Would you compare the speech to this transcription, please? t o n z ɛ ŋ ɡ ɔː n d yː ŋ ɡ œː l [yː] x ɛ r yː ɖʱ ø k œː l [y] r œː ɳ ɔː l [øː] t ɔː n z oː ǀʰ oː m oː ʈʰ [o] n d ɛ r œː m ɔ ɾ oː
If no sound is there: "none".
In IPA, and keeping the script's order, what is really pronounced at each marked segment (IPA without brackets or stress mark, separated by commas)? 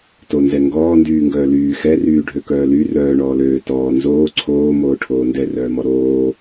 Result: yː, y, øː, oː